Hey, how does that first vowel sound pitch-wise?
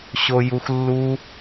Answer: high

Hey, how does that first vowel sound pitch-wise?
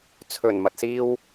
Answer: low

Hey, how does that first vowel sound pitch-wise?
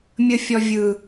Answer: high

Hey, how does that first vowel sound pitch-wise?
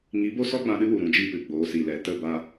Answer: rising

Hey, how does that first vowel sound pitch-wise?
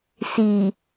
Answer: low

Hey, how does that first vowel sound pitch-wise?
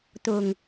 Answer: low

